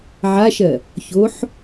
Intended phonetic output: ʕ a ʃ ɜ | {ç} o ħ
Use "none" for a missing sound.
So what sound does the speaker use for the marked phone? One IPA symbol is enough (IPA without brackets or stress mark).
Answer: ç